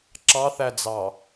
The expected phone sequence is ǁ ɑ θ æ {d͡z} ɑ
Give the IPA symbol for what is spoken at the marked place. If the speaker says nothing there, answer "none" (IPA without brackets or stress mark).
d͡z